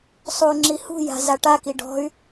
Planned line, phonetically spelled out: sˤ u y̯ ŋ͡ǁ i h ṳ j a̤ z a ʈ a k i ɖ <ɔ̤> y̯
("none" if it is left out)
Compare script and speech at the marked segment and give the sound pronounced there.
ɔ̤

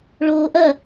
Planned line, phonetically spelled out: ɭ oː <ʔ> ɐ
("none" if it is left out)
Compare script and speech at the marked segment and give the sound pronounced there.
ʔ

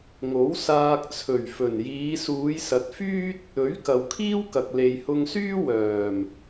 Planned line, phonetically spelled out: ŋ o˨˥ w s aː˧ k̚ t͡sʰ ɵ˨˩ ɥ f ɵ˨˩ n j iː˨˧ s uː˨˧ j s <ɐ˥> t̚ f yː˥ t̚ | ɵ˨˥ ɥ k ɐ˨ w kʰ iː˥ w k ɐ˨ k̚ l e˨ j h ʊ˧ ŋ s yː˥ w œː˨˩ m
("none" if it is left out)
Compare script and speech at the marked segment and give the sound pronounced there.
ɐ˨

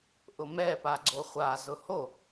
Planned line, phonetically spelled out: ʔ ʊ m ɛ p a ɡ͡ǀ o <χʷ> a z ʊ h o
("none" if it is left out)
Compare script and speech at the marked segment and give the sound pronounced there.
χʷ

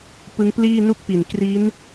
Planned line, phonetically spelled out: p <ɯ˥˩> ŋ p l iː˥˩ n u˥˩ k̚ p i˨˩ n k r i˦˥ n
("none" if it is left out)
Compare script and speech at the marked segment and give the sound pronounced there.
ɯ˦˥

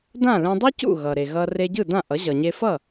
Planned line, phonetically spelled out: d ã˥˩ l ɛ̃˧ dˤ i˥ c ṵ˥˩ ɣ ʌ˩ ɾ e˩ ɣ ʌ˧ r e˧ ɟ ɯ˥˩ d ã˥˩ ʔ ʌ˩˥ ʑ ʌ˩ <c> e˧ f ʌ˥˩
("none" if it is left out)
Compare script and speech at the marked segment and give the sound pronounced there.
ɲ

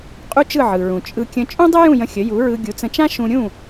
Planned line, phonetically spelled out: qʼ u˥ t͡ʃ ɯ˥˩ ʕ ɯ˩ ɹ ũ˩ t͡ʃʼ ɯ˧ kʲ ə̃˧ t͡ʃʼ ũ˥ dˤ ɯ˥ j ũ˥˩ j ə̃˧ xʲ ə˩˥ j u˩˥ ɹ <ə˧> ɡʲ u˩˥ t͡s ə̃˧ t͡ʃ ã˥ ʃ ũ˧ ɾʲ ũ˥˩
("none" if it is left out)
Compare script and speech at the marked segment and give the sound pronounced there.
ɯ˧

